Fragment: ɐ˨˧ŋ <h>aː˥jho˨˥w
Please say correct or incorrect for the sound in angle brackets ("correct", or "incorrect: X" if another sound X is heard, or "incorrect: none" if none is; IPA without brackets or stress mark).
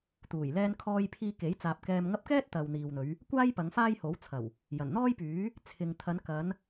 incorrect: f